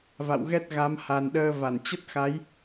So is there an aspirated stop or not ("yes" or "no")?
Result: no